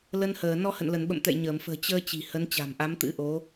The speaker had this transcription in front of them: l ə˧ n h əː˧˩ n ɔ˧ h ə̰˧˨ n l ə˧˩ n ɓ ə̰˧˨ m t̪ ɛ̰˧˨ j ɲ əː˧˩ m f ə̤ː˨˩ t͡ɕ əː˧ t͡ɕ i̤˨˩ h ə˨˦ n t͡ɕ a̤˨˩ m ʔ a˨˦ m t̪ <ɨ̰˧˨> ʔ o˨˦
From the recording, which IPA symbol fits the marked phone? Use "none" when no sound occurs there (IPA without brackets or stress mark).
ɨ̰˧˥